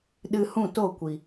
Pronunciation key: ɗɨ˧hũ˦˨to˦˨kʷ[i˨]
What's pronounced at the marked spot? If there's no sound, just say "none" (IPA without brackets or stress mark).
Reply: i˨